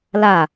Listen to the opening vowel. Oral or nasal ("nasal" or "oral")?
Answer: oral